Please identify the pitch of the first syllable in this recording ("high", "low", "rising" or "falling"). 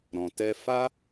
low